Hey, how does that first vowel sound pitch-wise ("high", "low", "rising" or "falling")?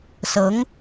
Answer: rising